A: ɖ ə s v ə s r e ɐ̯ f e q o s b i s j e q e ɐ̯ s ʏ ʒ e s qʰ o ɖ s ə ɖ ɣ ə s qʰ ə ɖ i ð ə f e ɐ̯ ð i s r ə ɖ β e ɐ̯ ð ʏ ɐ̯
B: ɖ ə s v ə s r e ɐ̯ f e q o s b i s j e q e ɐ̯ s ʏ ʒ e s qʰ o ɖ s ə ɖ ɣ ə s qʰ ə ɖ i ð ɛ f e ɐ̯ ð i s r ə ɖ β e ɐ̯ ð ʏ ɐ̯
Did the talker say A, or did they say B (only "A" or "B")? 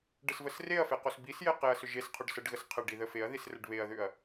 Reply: A